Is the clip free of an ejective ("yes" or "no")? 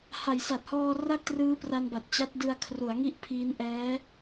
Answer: yes